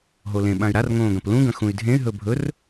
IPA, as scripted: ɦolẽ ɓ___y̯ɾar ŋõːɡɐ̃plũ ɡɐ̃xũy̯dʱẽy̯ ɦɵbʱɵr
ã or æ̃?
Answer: ã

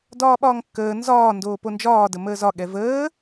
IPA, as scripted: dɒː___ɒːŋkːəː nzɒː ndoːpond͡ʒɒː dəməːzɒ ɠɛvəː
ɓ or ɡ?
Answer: ɓ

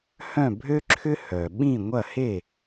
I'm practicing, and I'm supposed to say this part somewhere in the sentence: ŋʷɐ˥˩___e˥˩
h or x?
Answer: h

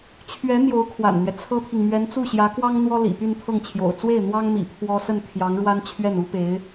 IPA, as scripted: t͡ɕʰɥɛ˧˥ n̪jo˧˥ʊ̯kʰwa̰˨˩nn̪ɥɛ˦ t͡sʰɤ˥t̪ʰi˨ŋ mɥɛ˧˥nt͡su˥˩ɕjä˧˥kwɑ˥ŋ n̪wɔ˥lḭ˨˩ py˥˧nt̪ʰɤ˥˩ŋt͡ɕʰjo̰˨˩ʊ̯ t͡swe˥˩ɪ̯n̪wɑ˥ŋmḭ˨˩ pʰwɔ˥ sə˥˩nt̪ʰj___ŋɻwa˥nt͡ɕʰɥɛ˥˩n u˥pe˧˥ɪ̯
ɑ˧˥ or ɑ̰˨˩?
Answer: ɑ˧˥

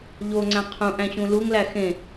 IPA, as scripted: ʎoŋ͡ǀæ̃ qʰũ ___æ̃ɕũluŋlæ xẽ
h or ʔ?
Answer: ʔ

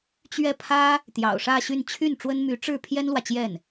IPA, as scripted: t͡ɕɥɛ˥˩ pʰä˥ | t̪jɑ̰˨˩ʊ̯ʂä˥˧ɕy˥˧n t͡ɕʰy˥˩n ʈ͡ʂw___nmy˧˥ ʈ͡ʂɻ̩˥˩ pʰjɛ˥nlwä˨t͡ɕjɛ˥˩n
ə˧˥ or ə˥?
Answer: ə˥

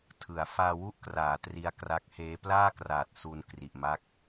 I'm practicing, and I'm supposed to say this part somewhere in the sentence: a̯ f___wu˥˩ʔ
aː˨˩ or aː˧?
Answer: aː˧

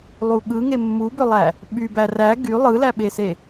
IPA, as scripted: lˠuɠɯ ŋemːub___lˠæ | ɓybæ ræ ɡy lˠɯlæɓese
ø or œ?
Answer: ø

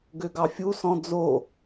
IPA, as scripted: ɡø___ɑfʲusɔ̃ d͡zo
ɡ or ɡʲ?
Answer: ɡ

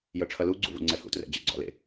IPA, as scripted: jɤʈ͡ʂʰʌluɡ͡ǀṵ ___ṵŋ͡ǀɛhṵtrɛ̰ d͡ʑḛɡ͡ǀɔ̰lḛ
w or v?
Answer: v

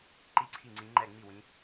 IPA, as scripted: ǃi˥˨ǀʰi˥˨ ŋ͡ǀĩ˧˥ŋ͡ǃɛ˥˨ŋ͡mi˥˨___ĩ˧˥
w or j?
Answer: w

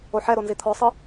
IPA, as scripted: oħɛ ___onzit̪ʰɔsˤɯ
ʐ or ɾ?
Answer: ɾ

